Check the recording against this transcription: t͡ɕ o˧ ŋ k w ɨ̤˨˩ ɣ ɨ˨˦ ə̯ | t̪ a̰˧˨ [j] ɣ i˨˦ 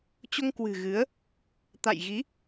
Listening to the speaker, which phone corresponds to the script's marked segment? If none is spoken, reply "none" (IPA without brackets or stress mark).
j